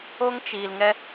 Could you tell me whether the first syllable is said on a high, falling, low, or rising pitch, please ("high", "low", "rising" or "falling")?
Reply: high